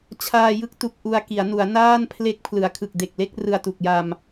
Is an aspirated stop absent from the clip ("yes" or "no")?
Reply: no